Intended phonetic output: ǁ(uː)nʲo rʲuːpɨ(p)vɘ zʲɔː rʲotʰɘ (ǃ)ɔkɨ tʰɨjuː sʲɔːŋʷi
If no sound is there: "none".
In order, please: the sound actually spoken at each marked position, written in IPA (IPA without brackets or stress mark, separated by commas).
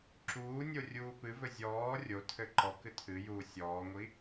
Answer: uː, none, ǃ